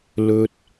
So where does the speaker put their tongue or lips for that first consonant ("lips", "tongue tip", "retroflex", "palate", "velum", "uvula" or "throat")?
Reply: tongue tip